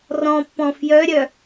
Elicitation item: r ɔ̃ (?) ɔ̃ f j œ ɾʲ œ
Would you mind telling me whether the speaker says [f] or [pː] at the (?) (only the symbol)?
pː